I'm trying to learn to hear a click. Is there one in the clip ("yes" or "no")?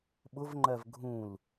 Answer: yes